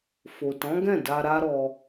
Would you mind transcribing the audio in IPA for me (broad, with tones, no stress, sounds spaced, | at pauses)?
f o˨ t ɔ̃˨˦ ɡ ɛ̃˦˨ d a˧ ɾ a˦ ɾ ɔ˧